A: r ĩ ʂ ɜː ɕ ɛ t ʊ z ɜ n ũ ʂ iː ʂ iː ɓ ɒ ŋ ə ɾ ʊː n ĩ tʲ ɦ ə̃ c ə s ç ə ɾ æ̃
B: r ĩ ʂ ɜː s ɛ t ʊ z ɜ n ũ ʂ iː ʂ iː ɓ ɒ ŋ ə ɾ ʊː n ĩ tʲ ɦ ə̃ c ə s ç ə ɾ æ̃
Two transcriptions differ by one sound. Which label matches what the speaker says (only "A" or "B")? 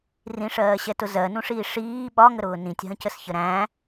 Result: A